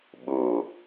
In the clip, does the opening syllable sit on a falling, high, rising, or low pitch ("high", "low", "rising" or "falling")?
low